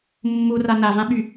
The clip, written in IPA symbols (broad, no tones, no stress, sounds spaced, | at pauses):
mː u r a n a v ã ɓ y